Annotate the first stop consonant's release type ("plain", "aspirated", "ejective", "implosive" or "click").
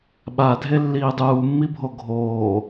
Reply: implosive